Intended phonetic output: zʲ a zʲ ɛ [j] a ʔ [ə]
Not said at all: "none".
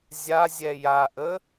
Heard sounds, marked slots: j, ə

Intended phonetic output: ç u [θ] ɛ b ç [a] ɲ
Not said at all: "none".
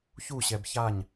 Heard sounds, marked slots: ɕ, a

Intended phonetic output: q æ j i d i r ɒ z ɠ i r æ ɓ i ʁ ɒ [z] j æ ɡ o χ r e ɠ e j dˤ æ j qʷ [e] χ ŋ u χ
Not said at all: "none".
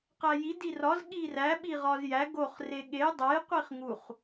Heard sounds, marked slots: z, i

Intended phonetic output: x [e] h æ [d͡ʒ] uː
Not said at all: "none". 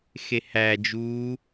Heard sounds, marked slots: e, d͡ʒ

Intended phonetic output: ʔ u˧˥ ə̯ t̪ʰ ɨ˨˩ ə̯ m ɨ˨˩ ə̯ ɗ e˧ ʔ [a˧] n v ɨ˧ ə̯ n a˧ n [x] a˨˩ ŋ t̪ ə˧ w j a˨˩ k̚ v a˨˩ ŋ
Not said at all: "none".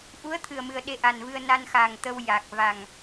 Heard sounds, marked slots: a˨˩, x

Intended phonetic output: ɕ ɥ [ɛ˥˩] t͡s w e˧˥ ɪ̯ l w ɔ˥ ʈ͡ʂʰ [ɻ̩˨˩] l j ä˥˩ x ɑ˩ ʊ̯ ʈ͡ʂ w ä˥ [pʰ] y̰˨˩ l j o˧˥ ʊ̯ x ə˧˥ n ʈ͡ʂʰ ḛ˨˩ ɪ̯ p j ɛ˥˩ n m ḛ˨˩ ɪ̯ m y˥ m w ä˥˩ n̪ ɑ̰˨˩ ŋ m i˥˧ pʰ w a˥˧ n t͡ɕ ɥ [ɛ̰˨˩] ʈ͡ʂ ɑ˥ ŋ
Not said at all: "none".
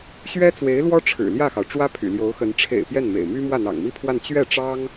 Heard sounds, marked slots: ɛ˥, ɻ̩˨˩, pʰ, ɛ˥˩

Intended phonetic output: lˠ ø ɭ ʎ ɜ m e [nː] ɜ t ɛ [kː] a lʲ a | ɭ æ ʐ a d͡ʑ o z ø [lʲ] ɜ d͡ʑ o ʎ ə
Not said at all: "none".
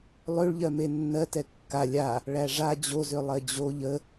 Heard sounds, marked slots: nː, kː, lˠ

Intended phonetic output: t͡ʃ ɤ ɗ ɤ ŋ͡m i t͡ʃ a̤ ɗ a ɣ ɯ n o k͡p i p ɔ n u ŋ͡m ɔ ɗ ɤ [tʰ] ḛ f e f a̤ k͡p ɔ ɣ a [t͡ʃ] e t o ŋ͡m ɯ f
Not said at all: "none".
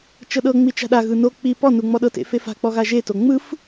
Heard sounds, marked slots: t, ʒ

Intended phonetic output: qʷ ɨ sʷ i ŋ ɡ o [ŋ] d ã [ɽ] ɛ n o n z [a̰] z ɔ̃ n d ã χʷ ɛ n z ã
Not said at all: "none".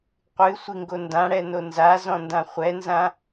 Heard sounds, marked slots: n, ɽ, a

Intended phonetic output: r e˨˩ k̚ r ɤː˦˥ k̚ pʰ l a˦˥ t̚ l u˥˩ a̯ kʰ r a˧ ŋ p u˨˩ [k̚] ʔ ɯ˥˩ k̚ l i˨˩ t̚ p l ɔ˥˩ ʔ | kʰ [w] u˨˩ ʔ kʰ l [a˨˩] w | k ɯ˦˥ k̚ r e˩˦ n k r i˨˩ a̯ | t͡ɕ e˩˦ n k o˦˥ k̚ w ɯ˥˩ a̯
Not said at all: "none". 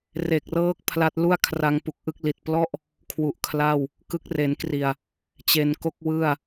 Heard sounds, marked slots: k̚, w, a˥˩

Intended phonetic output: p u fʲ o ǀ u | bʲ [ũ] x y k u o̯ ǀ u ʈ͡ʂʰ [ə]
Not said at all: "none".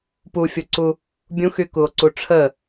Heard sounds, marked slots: ũ, ə

